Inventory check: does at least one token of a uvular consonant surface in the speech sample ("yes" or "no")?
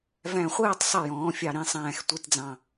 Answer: yes